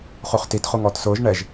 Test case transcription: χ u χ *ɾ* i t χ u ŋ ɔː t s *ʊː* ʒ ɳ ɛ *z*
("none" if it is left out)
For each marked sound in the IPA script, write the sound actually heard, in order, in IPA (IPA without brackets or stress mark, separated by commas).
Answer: t, ʊː, ʒ